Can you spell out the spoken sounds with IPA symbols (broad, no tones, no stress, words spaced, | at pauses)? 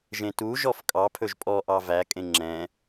ʒẽtuʒɔf kʼɑpʰɵʒ pʼɔʔɑ vækʼẽ ŋ͡ǁɛ̃